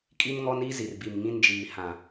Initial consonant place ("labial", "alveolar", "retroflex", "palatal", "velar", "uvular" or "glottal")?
velar